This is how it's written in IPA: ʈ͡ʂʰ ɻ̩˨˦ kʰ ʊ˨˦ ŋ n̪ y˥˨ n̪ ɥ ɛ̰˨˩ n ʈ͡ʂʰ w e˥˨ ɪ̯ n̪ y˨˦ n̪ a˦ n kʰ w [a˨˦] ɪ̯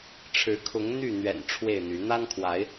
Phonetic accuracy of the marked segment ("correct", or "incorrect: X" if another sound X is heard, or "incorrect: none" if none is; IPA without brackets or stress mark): correct